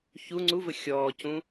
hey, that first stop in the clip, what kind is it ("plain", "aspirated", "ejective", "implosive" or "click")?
click